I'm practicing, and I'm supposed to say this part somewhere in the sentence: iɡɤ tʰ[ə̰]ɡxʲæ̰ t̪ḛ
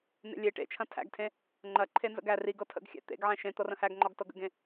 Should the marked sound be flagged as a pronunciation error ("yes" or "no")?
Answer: no